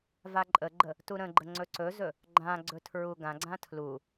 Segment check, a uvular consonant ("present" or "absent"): absent